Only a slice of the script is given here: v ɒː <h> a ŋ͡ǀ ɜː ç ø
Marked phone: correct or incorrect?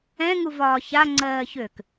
incorrect: ç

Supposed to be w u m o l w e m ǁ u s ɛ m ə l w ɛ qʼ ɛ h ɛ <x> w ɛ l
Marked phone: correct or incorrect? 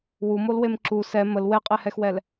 correct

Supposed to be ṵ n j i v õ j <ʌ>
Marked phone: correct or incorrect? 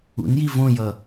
correct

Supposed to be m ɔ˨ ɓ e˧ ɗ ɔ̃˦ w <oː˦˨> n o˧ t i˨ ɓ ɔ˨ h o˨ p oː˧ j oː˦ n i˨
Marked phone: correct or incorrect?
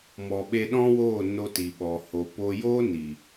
correct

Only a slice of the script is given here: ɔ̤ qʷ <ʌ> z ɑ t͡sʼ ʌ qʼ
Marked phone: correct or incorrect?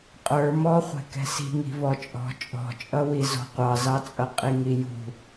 incorrect: ɑ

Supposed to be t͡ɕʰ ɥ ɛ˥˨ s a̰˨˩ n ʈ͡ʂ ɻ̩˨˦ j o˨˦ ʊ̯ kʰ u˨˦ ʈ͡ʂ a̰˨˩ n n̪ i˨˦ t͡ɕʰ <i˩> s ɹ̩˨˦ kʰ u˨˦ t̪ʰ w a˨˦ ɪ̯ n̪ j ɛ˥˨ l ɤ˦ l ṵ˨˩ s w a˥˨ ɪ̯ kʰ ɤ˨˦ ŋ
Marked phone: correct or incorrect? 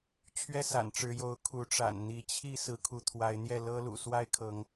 incorrect: i˦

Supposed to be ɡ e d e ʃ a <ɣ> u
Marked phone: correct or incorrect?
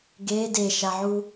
incorrect: ʕ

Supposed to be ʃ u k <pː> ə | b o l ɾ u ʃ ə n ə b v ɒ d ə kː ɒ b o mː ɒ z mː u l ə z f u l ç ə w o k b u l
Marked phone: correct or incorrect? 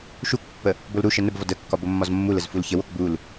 correct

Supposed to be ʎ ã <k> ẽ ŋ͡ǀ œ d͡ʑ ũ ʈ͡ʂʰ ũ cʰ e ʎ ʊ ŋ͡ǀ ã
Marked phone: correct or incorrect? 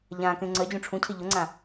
correct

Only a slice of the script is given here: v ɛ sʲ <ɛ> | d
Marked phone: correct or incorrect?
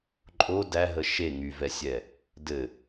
correct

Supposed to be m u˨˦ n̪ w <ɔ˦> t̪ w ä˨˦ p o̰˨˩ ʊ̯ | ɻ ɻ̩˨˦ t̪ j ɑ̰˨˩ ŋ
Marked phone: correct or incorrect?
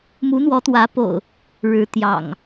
incorrect: ɔ˨˦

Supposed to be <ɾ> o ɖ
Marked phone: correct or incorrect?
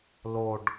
incorrect: l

